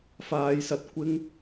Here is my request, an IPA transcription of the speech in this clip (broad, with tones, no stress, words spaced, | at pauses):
faː˨˧jsɐ˨t̚kʷɪ˥ŋ